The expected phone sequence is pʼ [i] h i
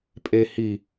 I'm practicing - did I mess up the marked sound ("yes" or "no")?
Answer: yes